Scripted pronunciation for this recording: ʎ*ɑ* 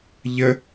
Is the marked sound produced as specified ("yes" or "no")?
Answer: no